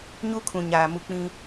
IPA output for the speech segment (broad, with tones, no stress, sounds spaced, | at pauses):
ɲ u˦ kʰ ũ˨ ɲ aː˨ m u˨ k͡p ĩ˦